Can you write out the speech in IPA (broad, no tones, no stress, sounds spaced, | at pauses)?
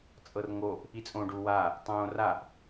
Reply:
t͡sʼ ɤ r ŋ o ʔ | i t͡sʼ õː ɖ u w a | tˤ õː r a ʔ